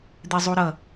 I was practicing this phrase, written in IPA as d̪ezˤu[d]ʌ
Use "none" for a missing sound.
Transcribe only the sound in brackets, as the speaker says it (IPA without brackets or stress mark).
ɾ